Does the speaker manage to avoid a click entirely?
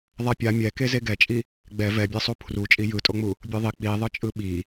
yes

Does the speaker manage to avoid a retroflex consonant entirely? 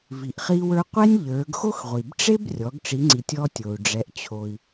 no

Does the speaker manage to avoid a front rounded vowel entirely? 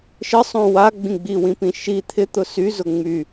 no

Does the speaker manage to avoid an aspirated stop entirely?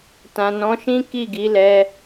yes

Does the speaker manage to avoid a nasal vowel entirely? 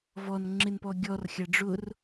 yes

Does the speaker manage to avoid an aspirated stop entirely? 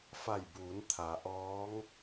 no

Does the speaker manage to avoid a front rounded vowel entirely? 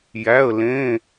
yes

